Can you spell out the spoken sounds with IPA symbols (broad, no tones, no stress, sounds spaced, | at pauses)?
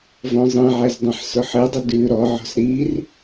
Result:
v ɔ̃ zˤ ĩ ʕ ɛ z dˤ ĩ ħ s ʊ ħ ɨ dˤ ə d ʉ ɾ ɔ ʕ ɔ̤ s ɾ i r